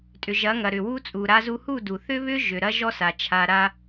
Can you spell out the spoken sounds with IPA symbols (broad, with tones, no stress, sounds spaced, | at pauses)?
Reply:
tʼ ʏ˨ ʒ ɐ˨˦ ŋ ɐ˨ ɾ ʏ˨ w u˦ t͡sʼ u˨ ɾ a˦ z u˦ h u˦˨ d u˨ θ ʏ˦ β ʏ˦ ʒ ʏ˨ ɾ ɐ˦ ʒ ɔ˦ s a˨ t͡ʃʰ a˨ ɾ a˦